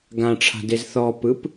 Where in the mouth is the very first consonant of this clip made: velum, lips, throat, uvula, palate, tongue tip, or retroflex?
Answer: velum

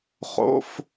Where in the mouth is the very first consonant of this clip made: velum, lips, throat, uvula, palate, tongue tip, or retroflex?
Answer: uvula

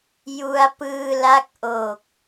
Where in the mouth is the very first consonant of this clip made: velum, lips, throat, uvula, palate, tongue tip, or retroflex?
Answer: palate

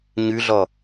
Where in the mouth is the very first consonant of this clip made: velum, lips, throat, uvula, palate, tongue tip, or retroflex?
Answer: palate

